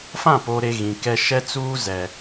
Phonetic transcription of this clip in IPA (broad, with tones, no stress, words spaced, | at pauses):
fã˦˨poː˨ɾe˨ ɣĩ˨kɛ˦ ʃɛ˦t͡suː˦ zɛ˨